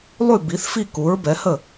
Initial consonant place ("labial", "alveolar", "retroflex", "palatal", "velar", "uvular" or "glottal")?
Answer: alveolar